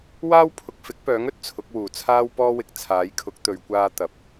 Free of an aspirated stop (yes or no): no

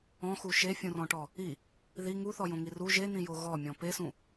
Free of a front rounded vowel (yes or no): yes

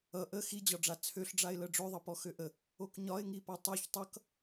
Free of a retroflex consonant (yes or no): no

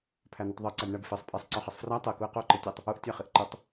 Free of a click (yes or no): no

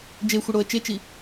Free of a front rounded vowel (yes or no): yes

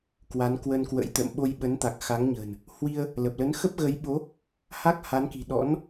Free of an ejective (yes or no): yes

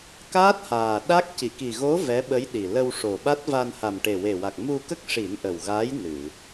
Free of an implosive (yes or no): no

